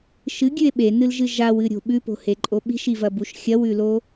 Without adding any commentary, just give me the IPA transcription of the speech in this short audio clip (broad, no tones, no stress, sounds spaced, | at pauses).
ʃ ɨ ɡʲ ʉ e̯ ɓ e n ɨ l ʒ ɨ ʒ a w ɨ ɾʲ o̤ ɓ ʉ p o̤ h e ǃʼ o ɓ i̤ ʃ i v ɐ b u ʃ xʲ ɐ w ʉ l o